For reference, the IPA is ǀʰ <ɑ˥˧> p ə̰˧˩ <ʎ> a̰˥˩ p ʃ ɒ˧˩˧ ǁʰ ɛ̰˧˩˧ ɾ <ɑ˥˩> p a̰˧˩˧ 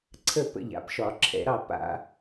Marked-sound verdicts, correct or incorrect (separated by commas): incorrect, correct, correct